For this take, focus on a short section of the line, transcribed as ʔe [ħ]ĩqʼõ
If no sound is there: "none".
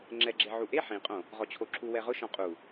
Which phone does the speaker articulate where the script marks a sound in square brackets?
ħ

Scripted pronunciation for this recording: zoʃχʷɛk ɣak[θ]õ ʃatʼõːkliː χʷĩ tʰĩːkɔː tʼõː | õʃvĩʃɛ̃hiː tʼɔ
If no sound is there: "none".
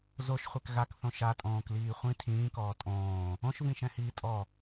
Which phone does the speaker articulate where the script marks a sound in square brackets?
θ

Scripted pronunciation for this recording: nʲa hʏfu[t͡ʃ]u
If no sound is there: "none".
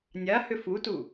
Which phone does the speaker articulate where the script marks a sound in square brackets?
t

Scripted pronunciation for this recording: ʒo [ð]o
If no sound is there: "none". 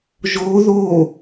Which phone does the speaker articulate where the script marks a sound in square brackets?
ð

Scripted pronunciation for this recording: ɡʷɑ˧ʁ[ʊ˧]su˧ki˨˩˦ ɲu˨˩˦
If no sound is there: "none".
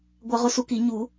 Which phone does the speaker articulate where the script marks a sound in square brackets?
ʊ˧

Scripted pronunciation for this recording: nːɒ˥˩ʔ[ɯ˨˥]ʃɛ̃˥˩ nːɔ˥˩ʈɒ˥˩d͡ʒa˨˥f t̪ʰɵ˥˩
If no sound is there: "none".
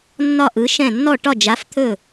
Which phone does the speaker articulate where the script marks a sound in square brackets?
ɯ˨˥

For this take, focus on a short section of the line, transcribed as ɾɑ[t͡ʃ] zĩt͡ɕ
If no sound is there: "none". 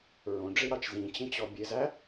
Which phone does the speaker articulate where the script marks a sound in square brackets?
t͡ʃ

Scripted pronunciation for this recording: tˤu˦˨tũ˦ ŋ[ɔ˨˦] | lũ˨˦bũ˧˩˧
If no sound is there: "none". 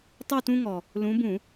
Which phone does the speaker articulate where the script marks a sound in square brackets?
ɔ˨˩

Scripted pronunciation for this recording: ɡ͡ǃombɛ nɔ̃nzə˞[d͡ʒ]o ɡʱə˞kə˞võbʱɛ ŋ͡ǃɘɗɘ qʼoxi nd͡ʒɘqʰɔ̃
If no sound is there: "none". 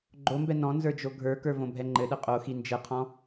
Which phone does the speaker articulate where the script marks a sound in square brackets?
d͡ʒ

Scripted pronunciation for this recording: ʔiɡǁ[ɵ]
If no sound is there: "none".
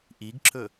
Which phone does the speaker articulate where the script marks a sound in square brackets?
ɵ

